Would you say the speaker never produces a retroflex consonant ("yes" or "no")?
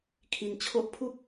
yes